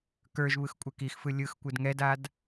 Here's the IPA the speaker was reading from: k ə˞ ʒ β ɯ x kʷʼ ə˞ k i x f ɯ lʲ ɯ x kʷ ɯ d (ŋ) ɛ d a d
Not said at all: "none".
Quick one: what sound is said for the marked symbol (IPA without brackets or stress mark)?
ŋ